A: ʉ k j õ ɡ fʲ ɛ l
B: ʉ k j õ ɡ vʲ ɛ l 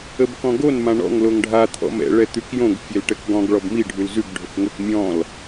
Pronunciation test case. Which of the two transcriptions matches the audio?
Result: A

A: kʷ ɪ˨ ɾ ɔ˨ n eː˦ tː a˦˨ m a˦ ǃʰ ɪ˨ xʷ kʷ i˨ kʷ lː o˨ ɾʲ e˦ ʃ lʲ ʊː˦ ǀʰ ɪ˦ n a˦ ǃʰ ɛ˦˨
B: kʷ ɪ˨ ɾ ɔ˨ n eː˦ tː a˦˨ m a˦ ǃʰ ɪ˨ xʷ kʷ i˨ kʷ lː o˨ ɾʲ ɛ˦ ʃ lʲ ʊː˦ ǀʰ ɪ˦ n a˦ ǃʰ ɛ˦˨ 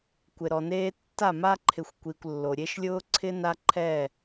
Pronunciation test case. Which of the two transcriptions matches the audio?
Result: A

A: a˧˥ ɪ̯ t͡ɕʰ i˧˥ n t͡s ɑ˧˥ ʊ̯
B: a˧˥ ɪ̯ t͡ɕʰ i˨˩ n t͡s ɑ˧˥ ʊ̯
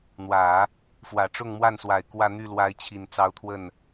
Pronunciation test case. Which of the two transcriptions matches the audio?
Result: B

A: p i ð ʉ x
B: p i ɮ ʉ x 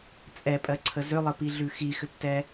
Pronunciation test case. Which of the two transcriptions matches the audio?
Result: B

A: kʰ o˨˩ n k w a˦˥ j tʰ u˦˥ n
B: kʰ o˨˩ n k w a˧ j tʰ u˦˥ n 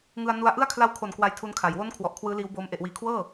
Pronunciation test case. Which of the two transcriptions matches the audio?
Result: A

